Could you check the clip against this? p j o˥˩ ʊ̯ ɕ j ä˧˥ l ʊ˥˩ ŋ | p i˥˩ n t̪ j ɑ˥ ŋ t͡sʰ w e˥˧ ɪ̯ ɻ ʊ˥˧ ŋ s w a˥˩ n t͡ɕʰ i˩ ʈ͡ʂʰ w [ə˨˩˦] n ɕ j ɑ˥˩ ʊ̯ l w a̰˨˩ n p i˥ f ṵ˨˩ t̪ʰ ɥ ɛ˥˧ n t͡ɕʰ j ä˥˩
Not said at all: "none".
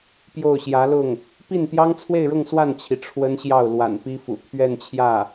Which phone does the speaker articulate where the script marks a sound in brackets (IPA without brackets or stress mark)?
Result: ə˥